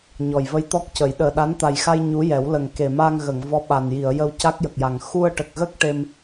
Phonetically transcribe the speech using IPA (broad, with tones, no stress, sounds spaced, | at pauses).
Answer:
ɲ ɔ˨˩ j v ə˧ j t̪ ɔ˦˥ k̚ c ə˨˩˦ j ɗ əː˨˩ ɗ a˧˥ n t̪ a˨˩ j x a˧ j ɲ u˧˥ j ɛ˨˩˦ w l ə˨˩ ŋ k e˨˩ m a˧ ŋ ɣ ə˨˩˨ ŋ v ɔ˧˥ ɓ a˨˩ n j i˨˩˨ ə̯ j ə˧ w c a˦˥ k̚ j ə˨˩ k̚ j a˨˩ ŋ x u˧ ə̯ ʈ ə˨˩ k̚ ɣ ə˦˥ k̚ ʈ e˧ m